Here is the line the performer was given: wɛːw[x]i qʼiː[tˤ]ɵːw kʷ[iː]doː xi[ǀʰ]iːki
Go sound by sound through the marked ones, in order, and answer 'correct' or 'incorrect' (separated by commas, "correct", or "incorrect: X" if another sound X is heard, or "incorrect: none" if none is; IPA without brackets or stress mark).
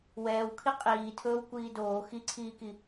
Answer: incorrect: kʰ, incorrect: tʰ, correct, correct